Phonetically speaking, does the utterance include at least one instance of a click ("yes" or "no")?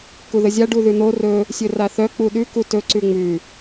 yes